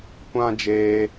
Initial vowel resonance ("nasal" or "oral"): nasal